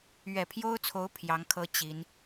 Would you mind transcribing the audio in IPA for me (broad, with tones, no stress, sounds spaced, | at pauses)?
ɥ ɛ˨˩ pʰ j o˥ ʊ̯ t͡sʰ o˧˥ ʊ̯ pʰ j ɑ˧˥ ŋ kʰ ɤ˥ t͡ɕ i˧˥ n